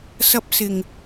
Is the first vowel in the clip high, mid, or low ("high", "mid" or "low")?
low